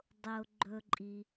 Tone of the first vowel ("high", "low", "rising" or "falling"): low